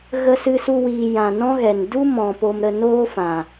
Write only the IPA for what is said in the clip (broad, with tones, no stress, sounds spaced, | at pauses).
ɣ ə˧ s ɨ˧ s u˧ w iː˨ j ã˨ n ɔ̃˦ ɣ ɛ˨ n d u˦ m ɔ̃˨ p o˧ m ɾ ə˧ n oː˦ f ã˨